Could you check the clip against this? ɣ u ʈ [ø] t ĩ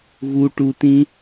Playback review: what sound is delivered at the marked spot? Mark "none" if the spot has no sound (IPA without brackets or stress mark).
u